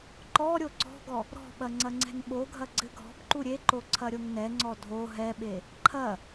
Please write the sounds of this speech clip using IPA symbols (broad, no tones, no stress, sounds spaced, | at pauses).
ǃ ɔ ɾʲ o ǀ ɔ̤ ɡ ɔ | ɾ ɔ̤ ɓ ɐ ŋ͡ǀ ɐ ŋ͡ǀ ɛ̤ ŋ ɓ o ɡʱ ɐ ɡ͡ǀ ɘ ɡʱ ɔ̤ b ǃ u ɾʲ e ǃ o ǀʰ ɐ ɾʲ o ŋ n ɛ ŋ͡ǀ ɔ dʱ o ɦ ɛ ɓ e | ǃʰ ɐ